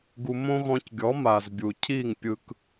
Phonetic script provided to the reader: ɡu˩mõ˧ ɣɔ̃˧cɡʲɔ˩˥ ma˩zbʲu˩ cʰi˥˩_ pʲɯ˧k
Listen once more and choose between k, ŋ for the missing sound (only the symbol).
ŋ